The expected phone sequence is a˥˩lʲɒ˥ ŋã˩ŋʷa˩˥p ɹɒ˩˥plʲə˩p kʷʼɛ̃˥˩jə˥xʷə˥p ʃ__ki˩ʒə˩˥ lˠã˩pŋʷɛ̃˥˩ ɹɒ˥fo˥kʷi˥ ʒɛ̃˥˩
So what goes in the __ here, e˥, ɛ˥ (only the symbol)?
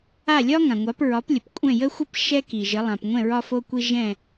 ɛ˥